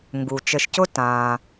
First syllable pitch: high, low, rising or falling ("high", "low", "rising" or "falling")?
low